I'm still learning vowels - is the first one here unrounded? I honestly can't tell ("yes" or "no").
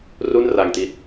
no